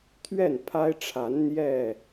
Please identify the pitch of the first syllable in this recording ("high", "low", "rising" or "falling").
falling